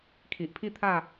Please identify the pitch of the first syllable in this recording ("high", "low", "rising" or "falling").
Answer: low